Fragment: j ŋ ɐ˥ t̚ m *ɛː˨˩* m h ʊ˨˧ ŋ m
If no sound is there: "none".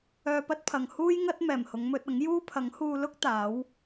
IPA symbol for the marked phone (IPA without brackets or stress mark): ɛː˨˩